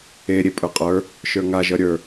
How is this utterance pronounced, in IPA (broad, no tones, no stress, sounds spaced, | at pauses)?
e ɾʲ e pʼ ə˞ qʼ ə˞ | ʃ ə˞ ŋ a ʒ ʌ ɾʲ ə˞